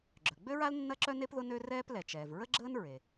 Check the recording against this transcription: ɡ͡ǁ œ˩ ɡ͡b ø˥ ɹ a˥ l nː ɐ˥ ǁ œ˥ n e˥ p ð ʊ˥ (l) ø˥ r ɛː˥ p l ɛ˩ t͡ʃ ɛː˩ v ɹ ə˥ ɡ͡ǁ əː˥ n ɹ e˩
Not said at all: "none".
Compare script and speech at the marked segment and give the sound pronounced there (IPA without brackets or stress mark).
n